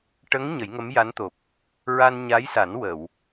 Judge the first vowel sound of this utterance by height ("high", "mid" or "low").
mid